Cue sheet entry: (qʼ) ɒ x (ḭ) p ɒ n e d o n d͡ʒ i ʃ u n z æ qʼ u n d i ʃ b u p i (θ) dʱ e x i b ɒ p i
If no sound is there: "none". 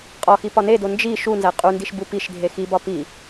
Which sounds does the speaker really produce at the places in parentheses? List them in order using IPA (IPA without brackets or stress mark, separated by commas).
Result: qʼ, i, ʃ